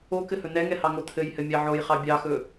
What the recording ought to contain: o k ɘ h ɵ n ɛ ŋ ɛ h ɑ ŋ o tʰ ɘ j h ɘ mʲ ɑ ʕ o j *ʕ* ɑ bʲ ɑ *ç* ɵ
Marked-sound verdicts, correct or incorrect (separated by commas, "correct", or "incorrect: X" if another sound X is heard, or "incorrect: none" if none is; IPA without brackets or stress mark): incorrect: χ, incorrect: x